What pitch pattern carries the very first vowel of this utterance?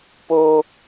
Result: high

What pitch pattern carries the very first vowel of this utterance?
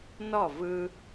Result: falling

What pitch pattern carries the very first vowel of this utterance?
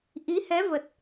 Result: rising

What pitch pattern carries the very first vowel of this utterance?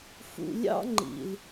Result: low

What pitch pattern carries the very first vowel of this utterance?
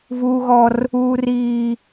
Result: high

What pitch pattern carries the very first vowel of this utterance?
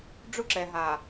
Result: high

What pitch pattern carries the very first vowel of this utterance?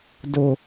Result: low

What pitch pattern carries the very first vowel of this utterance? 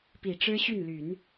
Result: low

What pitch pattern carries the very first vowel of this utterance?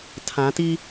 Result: rising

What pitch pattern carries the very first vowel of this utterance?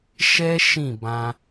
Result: high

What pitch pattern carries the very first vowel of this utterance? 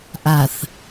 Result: low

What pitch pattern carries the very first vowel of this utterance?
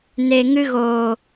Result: low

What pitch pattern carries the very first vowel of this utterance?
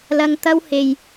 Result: high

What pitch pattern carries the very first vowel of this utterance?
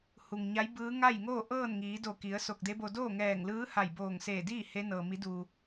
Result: low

